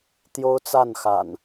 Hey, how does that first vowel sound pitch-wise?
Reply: high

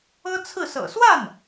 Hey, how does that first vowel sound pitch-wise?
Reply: high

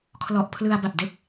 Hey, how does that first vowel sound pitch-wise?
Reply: low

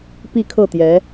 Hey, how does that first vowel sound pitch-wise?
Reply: falling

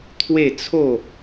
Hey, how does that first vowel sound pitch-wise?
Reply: falling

